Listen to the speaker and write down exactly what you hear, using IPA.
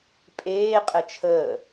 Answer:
pʼ eː qʼ ɘ t͡ʃʰ əː

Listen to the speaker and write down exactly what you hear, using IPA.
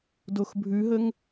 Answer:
d o x bʱ ʉ ɦ ə ŋ

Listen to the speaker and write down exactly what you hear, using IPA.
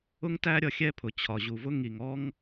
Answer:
ʊ˦ ŋ t æ˦ ɾʲ ʌ˧ xʲ ɛ˦ pʰ ʊ˨ t͡ɕʰ ɒ˨ ʑ u˨ v ʊ˦ ŋ i˨ ŋ ɔ˦ ŋ

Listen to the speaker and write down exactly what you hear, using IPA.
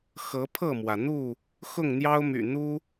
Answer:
x ɤ˨˦ pʰ ɤ˥˨ m w ä˩ n̪ u˥˨ | x ʊ˥˨ ŋ n̪ j ɑ˦ ʊ̯ m y̰˨˩ n̪ u˦

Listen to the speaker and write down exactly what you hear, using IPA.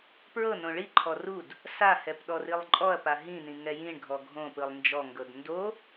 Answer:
p ɹ ɤ n õ ɭ i ǃʰ ɔ r u d | s a h ɛ p ɗ ɔ r i lˠ ǃʼ ɔ ɐ̯ p a ɦ ĩ n ĩ ŋ ɛ j ĩ ɳ ɡʱ ɔ ɡʱ õ p ɯ lˠ n d͡ʒ ɔ ŋ ɡ ɤ d n d o

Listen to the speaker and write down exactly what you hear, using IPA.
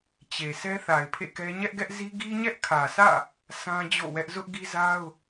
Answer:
t͡ɕ e˨ sʰ ɛ˦ θ a˨ ɪ̯ pʰ ḛ˦˨ k ɛ˦ ɲ ɛ˦ ʔ ɡ ɛ˦ ʔ z i˦ ɡ i˦ ɲ ɛ˦ ʔ kʰ ä˨ s ä̰˦˨ | s ã˦ d͡ʑ o̰˦˨ w ɛ˦ ʔ z ʊ˦ ʔ ɡ i˦ z a˦ ʊ̯

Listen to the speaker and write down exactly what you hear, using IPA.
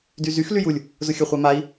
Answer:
d y z y x l y j u lʲ | z ʊ xʲ œ χʷ a m a i̯

